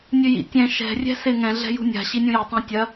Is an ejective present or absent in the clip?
absent